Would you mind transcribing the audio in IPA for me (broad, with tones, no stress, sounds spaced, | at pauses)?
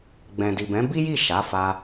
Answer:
ɡ͡b ɛ̃˨ d i˨ b ɛ̃˨˦ b i˦ j i˦˨ ʃ a˨˦ f a˧